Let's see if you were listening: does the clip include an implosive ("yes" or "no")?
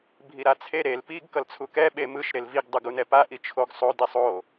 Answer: yes